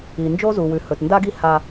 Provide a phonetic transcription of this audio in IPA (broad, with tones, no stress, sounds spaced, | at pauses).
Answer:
i˨ n d͡ʒ o˦ z u˨ w ʉ˨ h ɵ˨ t n d a˦ ɡ i˦ h a˦